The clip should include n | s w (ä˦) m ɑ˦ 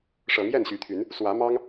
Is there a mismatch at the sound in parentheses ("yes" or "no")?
yes